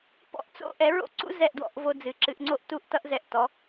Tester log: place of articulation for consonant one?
labial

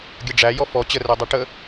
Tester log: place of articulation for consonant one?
velar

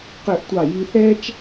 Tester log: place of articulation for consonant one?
uvular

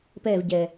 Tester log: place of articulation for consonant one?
labial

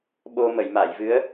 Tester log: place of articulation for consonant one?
labial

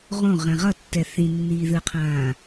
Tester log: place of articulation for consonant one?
uvular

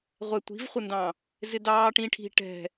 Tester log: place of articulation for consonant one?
uvular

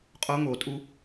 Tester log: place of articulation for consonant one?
uvular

